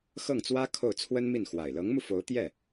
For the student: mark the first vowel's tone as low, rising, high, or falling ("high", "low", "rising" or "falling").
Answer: falling